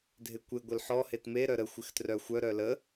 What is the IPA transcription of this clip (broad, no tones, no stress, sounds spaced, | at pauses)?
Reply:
dʱ ɪ kʷ ɪ ɡʷ ɪ l ħ ɔ h e t m e ɾ œ ɾ ə xʷ ɪ x t r œ xʷ œ ɾ œ l ə